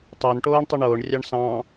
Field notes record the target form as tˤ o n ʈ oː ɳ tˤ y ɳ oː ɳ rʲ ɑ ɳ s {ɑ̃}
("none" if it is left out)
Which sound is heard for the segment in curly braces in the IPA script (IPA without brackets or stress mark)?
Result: ɑ̃